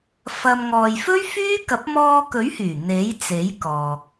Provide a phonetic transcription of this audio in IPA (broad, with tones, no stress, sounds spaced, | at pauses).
f ɐ˧ m ŋ ɔː˨ j f ɵ˥ ɥ f yː˥ k ɐ˨˥ p̚ m ɔː˧ k ɵ˨˥ ɥ h yː˨˩ n̪ e˨˥ j t͡s e˨˥ j k ɔː˨ k̚